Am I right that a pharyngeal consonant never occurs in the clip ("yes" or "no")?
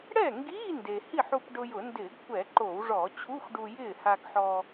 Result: no